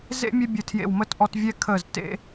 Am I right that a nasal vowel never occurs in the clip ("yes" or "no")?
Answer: yes